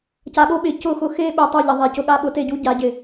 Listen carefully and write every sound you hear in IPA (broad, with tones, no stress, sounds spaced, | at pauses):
c a˨ ɠ o˦ ɓ ɪ˨ c ʊ˦˨ x ʊ˦ x e˦ ɓ ɪ˨ tˤ o˦˨ ʎ ɪ˨ ðˤ i˨ c ʊ˦ ɠ a˦ ɓ ʊ˦ t e˦ ɟ u˦ ɟ a˨˦ ɟ ɪ˨